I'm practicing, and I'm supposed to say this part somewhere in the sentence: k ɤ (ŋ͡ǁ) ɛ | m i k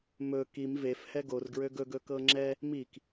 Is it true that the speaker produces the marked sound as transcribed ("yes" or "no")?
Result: yes